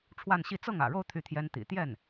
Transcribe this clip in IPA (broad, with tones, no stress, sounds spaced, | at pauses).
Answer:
ʈ͡ʂʰ w a˥˧ n ɕ i˥˧ t͡s ɤ˥˩ ŋ ä̰˨˩ ɻ o˥˧ ʊ̯ t̪ʰ y˥˩ t̪ʰ j ɛ˥ n t̪ ḭ˨˩ t̪ j ɛ˥˩ n